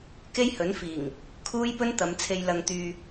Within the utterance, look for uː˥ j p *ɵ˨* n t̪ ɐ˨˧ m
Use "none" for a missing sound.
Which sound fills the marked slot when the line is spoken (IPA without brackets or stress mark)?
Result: ɵ˥